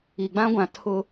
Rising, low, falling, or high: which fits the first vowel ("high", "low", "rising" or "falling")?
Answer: low